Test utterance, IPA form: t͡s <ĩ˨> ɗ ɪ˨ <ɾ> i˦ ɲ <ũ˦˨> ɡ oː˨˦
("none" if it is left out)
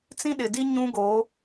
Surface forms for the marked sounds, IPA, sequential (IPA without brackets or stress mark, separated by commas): ĩ˦, d, ũ˦